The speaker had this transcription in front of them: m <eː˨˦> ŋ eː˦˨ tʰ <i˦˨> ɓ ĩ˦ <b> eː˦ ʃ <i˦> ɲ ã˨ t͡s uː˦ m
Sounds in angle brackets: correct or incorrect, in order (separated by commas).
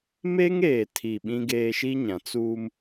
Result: incorrect, correct, incorrect, correct